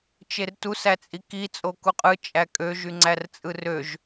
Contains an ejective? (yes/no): yes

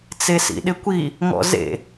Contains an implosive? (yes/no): yes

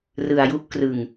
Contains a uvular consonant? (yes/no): no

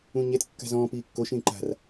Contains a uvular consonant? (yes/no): no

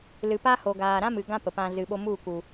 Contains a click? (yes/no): no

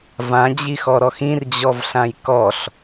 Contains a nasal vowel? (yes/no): yes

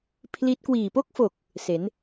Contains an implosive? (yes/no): no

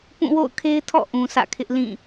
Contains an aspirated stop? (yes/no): yes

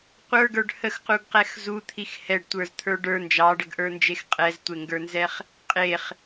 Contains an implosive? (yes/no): no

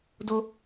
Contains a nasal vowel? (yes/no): no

